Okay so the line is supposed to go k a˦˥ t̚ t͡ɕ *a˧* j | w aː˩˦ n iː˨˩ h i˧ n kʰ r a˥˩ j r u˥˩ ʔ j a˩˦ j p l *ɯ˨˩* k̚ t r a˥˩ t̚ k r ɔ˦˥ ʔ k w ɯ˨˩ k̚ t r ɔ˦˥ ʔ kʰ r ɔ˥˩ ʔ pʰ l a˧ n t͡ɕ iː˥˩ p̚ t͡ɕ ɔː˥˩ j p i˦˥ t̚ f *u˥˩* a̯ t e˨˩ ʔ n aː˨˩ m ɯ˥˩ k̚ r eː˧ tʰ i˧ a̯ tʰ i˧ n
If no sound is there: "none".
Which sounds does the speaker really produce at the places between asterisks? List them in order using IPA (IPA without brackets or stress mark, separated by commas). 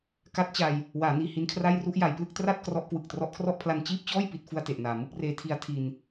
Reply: a˧, ɯ˥˩, u˥˩